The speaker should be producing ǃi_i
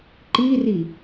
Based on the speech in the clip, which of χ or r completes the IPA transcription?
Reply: r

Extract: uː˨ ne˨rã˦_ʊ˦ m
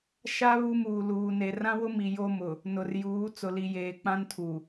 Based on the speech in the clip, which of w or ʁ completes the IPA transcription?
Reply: w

